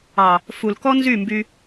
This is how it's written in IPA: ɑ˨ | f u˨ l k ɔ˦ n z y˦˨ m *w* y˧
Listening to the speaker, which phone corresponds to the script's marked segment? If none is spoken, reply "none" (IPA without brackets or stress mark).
b